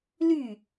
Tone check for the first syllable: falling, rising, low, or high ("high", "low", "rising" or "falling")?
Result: falling